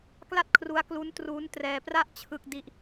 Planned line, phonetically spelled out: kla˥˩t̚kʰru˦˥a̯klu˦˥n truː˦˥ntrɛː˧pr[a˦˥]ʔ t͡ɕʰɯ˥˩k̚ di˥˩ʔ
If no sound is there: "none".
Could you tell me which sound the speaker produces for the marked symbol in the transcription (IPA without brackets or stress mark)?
a˥˩